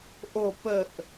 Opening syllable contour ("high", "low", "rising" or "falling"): falling